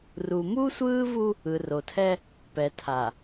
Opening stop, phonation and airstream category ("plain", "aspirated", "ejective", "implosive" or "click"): aspirated